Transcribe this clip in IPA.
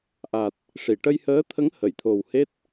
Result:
ʔ a˨˩ t̚ | ʂ i˨˩˨ ʈ ə˧ j h əː˧˥ t̪ʰ ə˧˥ ŋ h ə˨˩˨ j t̪ʰ o˨˩ w h e˦˥ t̚

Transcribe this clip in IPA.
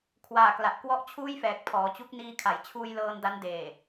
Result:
kʰ w aː˨˩ k l a˨˩ ʔ k w ɔ˦˥ ʔ t͡ɕʰ uː˥˩ j f ɛː˨˩ k̚ pʰ ɔː˩˦ t͡ɕ u˦˥ k̚ n iː˧ kʰ a˩˦ j t͡ɕʰ uː˧ j l ɤː˧ n d a˦˥ n d eː˨˩

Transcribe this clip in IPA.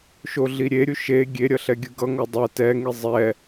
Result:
ʃ o ɮ i ɾʲ e ɾʲ u ʃ e ɡʲ e ɾʲ ʌ ɬ ɛ ɡʲ ɯ ɡ ʌ ŋ o dˤ ʌ t ɛ ŋ i zˤ ɛ

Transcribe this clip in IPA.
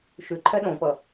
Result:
ʃ ʉ ǃʰ ɛ ɗ õ p ʌ

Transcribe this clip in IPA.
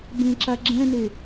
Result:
b ẽ ǁ a ɡ͡ǁ ɛ̃ n e

